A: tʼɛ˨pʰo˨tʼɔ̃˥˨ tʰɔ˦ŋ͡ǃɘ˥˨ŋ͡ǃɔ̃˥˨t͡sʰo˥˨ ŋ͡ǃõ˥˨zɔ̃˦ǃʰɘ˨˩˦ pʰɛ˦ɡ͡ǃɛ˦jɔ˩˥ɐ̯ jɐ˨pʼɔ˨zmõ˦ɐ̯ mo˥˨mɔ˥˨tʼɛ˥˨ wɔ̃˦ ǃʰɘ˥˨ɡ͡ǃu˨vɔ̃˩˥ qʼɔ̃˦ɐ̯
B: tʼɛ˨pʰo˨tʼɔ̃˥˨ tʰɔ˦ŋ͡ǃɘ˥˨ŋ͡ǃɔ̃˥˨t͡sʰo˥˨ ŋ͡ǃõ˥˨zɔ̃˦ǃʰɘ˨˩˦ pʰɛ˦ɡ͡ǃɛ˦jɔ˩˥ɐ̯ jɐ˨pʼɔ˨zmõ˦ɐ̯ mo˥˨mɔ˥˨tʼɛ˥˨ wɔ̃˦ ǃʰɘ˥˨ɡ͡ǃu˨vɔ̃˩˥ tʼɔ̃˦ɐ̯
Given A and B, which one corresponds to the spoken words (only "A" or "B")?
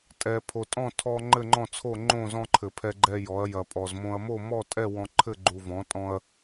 B